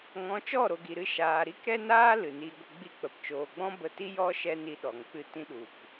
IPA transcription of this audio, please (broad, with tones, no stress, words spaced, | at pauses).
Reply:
ŋɔ̃˨˦t͡ʃɔ˦˨ɾo˨ɡi˨ ɾɨ˧ʃaː˨ ɾi˦kɾɛ˦naː˦ lɨ˨ni˧ɡʷə˧ ɡ͡bi˦ k͡pə˨pt͡ʃoː˨ɡ͡bɔ̃˦ bə˧ti˦ jɔ˦ ʃɛ˧ ni˧ɗɔ˨ŋk͡pɨ˧ tĩ˧ɗu˨k